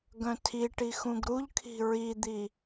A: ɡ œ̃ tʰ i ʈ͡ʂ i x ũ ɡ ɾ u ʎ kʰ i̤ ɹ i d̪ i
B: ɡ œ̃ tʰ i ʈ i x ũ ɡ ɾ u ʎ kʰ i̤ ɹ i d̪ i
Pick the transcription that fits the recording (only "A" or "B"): B